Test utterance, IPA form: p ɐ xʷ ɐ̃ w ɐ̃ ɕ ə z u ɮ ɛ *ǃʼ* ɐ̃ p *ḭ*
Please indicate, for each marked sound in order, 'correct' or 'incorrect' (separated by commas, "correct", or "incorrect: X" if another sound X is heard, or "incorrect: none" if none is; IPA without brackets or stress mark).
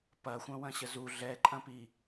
correct, incorrect: i